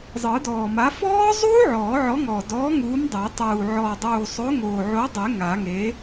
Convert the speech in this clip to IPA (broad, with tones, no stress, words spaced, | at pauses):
zˤɯ˨˩˦dɔː˨˩ma˨˥ fɔː˦˥zˤuː˦˥ ʕɔː˨˩˦ʕɔ˨˥ŋɔː˨˩ dɔː˨˥ ŋuː˨˥mdˤɛ˨˩˦ tˤuː˨˩ ʕɔː˨˩dˤuː˨˩ sˤo˨˥ŋoː˨˩ʕo˨˥dˤe˨˩˦ ŋa˨˩˦ŋe˨˥